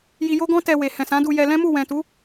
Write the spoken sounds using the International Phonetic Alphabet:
ji˧jo˦ɡɔ̃˦ tɛ˧we˨ hɛ̃˨sã˨˦du˧jɛ˧ lɛ̃˦mu˦˨ wɛ̃˨tu˨˦

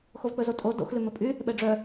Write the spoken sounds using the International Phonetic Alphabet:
xovk͡pɵzotʼo do̰x lʉmɵpʼy | ɓɛɖ͡ʐœ

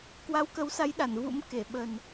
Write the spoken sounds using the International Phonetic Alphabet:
kwa˨˦wkə˨˦wsa˨˦jɗa˧˩n vṵ˧˥m ke˧˩ɓə˨˩n

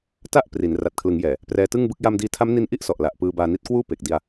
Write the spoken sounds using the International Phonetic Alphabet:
ta˥˩ʔ pri˩˦n ra˨˩t̚kʰlɯ˩˦ŋjɛː˨˩ | prɛː˧tɯ˥˩ŋbɯ˥˩k̚ ja˧mdiː˧tʰa˦˥m ni˦˥nʔi˥˩ʔsɔ˨˩ʔ la˨˩ʔpɯː˧ baː˧ni˦˥t̚ kwuː˥˩pe˨˩k̚ di˧a̯

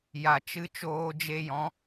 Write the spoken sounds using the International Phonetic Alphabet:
ja˨t͡ʃɨ˧ t͡ʃoː˧d͡ʒe˧jɔ̃˨˦

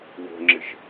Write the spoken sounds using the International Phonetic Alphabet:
wo̤ŋ͡ǁɪʃ

